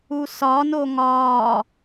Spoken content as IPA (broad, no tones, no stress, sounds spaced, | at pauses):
u s ɒ n o ŋ ɒː